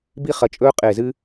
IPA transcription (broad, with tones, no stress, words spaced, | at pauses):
bi˥χɐ˦˨ t͡ʃʼɵː˥ qʼe˦˨zɨ˥